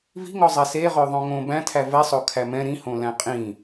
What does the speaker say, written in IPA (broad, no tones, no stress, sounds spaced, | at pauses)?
v i̤ ŋ ɔ zˤ ɛ s e ʁ ø ðˤ õ ŋ õ b æ̃ tʰ æ v ɛ sˤ o kʰ æ m ɛ̃ ɾ ĩ h õ l æ̃ qʼ ĩ